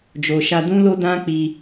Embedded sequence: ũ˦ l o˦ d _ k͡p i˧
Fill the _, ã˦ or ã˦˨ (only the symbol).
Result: ã˦